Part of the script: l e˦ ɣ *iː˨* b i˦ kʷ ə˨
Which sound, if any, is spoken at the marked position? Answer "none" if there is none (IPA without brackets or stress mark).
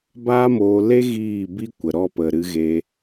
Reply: iː˦˨